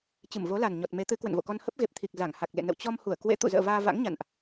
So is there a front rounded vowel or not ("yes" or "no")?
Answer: no